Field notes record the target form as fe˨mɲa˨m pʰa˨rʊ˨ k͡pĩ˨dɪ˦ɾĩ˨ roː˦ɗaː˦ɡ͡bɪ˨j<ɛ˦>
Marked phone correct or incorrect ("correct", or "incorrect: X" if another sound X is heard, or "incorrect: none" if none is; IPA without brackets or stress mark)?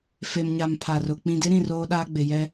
correct